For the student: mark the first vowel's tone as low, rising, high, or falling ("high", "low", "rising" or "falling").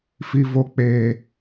low